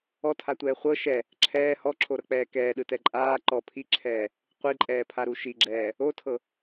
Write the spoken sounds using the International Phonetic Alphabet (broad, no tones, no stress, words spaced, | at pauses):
ɔtʰatʷɛː χʷɤ ʃɛ | ǁʰɛː hɔǁʰoɾɤk͡pɛː kɛːɗɯtɛ ǃʼaː ǃɔ pʰiǁʰɛː | qʷiǃʼɛːpʰaɾu ʃiɡ͡ǁɛː | otʰɤ